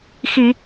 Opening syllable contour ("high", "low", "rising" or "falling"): low